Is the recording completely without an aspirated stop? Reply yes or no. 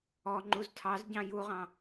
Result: no